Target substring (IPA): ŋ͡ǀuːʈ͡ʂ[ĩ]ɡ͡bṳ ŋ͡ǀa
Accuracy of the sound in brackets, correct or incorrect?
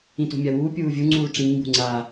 incorrect